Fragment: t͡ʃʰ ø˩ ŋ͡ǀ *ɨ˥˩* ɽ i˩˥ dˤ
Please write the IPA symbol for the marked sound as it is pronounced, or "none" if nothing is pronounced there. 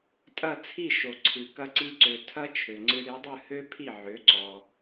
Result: ɨ˧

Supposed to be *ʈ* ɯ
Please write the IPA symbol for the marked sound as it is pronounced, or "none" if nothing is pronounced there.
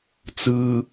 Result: t͡s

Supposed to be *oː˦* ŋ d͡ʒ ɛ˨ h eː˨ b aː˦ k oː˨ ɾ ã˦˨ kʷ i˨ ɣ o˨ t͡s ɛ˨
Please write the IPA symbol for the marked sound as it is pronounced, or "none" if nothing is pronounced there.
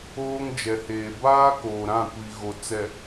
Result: oː˦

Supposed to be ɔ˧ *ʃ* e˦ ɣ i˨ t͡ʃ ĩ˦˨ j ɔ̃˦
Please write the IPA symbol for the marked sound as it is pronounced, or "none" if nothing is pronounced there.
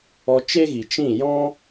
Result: t͡ʃ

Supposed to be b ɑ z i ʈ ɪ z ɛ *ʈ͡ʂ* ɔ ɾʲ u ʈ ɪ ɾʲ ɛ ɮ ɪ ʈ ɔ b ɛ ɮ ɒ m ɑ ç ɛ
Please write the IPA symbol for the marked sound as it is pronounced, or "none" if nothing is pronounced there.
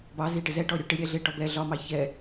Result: ʈ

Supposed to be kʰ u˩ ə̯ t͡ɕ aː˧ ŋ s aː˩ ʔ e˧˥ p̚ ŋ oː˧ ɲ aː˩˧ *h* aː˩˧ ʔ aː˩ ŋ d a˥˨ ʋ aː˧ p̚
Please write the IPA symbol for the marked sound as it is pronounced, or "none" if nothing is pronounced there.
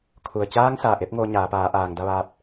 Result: p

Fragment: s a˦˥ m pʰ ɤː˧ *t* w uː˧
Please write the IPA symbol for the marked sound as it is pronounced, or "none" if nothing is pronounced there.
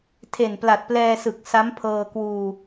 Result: k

